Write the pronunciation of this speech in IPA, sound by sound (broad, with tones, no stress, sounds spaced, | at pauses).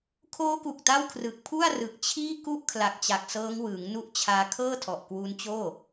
kʰ oː˦˥ k u˨˩ k̚ t a˥˩ w kʰ r ɯ˨˩ k̚ pʰ u˥˩ a̯ r ɯ˨˩ k̚ t͡ɕʰ iː˥˩ k u˥˩ ʔ kʰ l a˨˩ k̚ t͡ɕ a˨˩ k̚ s ɤː˦˥ ŋ w ɯː˩˦ ŋ n u˦˥ ʔ t͡ɕʰ aː˧ kʰ ɤː˥˩ tʰ ɔ˨˩ ʔ k w u˦˥ n t͡ɕ oː˥˩